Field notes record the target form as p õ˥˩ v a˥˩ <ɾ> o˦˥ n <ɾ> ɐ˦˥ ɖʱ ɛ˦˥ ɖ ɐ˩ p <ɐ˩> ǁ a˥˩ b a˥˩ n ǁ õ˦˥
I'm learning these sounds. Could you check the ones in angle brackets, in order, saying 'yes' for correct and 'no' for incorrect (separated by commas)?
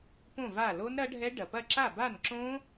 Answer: no, yes, no